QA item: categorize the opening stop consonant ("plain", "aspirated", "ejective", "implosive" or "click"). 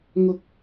plain